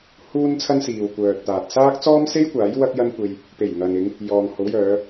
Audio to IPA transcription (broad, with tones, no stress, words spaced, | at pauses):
huː˥nt͡sʰɐ˥nsiː˨w kʷœː˨t̚t̪aː˨t̚ saː˥k̚t͡sɔː˥mse˥jkʷaː˨˥j wɐ˥k̚jɐ˥nkʷe˧j | pe˨˩jŋɐ˨nɪ˨˧ŋ | jɔː˨ŋho˨˥wjœː˨˧